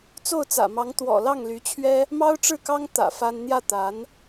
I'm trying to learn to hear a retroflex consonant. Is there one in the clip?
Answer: yes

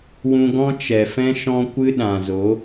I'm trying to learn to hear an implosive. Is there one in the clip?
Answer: yes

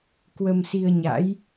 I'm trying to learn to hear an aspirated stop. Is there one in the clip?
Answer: no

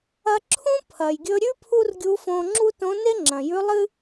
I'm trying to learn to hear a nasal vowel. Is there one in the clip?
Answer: yes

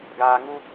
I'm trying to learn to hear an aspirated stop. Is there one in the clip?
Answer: no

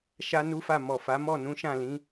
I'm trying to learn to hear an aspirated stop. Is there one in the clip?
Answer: no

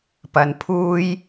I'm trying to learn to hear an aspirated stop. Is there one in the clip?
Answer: yes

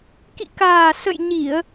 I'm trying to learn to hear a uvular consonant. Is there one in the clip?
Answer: no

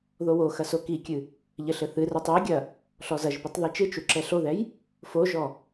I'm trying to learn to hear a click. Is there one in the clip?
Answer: yes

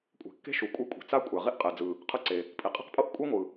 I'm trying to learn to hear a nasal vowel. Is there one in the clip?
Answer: no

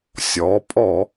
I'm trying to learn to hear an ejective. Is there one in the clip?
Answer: yes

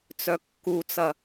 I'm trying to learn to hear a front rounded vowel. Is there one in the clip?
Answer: yes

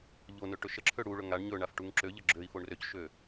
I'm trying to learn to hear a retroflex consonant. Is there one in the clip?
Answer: yes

